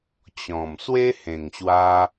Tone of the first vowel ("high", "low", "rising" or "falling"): low